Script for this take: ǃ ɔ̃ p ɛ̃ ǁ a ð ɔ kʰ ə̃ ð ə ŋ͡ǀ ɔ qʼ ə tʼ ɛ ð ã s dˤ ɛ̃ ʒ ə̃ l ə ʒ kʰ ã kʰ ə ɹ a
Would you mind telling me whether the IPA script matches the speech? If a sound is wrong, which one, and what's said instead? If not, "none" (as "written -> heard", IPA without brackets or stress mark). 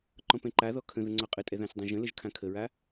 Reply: ǁ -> ǃ